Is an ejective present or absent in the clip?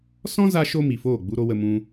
absent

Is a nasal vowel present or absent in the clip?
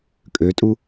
absent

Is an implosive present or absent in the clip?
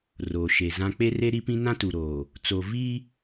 absent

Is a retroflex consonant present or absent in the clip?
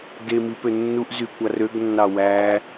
absent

